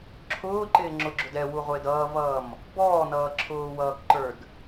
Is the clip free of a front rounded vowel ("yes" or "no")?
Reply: yes